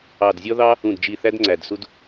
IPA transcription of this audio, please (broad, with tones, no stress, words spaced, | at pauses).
ɑ˨˩dzʲɔ˦ ðɑ˦ | ũ˨˩dd͡ʒi˨˩ θæ˦dŋ͡ǀæ˨˩dsu˦d